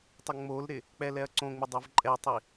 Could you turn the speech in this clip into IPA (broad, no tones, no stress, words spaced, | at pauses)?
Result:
tˤʊŋ͡molɾɪ | k͡pɛlɛɐ̯ǀõŋ͡mɪ dˤuvǃʼɛtˤi